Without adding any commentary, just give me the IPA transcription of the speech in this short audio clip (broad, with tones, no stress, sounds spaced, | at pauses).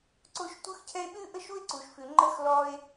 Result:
ǀ o˥ ʃ tʷ ɯ˦ x cʰ ɛ˦ e̯ ɓ ʉ˥ ʔ ə˥ ʃ u˥ e̯ ǀ u˨ ʃ f ʉ˨ ŋ͡ǃ ə˥ x l ɔ˦ e̯